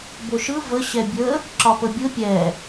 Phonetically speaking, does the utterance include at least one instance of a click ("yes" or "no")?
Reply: yes